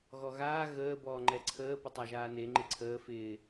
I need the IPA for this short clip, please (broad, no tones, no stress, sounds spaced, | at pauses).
ɣ ɔ ɣ aː ɣ əː b ɔː ŋ͡ǃ ɛ ǀʰ əː p ɪ tˤ a ʒ aː n e ŋ͡ǃ ɪ ǀʰ əː f ɪː